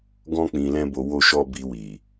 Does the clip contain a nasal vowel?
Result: yes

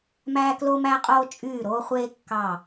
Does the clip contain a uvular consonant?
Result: yes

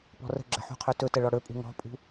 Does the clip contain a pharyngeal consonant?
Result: yes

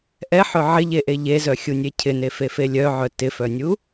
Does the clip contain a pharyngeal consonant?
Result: yes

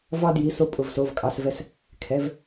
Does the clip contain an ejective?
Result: yes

